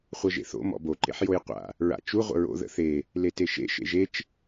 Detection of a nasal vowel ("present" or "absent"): absent